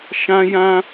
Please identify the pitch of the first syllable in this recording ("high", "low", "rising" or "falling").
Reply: high